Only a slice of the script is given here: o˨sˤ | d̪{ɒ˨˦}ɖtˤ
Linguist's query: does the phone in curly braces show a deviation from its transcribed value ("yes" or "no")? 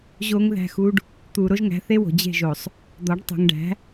no